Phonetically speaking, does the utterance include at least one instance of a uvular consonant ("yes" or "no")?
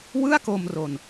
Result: no